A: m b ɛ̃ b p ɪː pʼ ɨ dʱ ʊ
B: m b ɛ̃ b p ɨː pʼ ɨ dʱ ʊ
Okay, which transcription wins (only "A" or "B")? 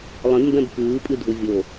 B